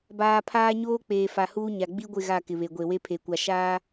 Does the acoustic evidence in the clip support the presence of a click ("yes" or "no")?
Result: no